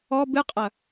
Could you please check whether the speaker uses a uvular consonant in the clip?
yes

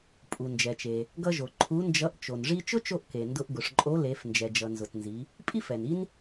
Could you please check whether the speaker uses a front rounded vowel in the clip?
no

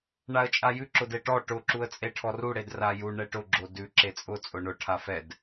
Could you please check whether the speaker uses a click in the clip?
yes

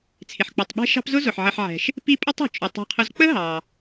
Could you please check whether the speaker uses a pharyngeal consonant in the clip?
yes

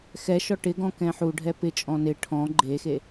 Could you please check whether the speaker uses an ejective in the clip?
yes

